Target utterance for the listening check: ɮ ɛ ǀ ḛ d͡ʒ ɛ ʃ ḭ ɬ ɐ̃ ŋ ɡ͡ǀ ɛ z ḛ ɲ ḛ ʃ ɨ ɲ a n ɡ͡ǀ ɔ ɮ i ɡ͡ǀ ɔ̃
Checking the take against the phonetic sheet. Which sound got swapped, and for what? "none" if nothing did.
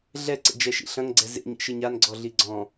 none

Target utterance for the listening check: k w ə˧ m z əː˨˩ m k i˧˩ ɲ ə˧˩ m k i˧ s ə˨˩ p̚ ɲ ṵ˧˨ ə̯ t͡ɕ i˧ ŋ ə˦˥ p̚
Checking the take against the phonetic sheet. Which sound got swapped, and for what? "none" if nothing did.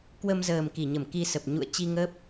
none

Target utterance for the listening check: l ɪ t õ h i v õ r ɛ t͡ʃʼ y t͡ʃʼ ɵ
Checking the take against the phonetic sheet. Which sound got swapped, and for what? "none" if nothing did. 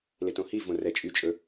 none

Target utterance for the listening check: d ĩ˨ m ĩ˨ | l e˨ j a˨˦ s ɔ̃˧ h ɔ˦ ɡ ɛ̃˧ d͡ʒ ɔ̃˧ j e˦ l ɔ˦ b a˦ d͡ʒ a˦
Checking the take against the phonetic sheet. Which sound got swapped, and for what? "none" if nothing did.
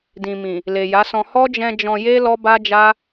ɡ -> d͡ʒ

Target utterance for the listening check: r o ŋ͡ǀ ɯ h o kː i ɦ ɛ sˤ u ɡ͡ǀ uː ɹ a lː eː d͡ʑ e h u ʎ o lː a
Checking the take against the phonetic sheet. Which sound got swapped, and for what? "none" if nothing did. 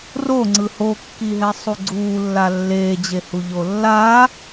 ɹ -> lː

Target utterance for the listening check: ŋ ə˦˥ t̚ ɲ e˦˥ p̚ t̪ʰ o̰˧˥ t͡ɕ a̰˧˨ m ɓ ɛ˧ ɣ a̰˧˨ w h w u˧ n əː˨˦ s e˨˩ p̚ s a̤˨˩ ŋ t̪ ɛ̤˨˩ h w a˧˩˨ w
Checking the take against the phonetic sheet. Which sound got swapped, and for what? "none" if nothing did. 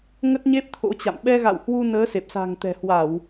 none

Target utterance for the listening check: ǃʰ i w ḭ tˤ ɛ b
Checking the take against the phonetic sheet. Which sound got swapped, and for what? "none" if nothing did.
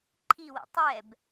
none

